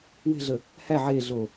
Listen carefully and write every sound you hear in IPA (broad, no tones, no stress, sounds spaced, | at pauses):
w e̤ ɮ ə | h æ ʕ e ɮ o